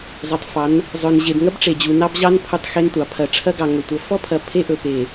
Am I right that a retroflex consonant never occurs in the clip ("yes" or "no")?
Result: no